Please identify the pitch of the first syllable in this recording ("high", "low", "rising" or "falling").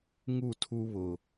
falling